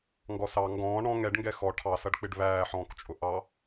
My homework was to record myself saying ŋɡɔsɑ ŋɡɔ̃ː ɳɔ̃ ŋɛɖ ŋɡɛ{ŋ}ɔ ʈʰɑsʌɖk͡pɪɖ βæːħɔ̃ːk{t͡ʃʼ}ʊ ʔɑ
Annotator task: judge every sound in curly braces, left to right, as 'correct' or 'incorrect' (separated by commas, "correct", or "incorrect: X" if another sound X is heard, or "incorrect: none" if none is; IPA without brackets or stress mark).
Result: incorrect: x, correct